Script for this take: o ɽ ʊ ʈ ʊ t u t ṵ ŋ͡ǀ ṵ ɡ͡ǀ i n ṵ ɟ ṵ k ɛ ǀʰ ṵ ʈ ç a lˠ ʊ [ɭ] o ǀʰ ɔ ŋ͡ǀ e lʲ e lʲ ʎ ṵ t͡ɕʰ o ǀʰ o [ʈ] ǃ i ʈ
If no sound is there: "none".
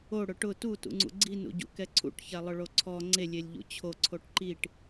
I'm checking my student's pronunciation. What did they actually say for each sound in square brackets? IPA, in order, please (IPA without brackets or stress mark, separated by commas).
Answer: ɭ, ʈ